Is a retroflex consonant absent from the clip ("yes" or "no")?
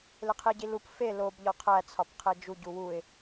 yes